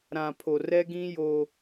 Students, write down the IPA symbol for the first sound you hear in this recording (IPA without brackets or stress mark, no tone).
ɾ